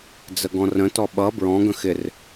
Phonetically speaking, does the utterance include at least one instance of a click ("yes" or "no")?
no